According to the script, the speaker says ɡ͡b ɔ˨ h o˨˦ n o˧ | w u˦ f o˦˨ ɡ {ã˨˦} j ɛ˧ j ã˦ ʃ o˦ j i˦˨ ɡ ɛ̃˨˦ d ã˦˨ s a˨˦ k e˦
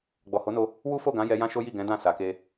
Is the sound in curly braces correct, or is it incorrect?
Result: correct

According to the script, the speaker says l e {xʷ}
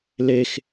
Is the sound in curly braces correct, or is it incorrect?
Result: incorrect: x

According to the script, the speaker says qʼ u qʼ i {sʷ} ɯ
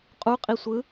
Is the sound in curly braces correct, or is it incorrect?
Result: correct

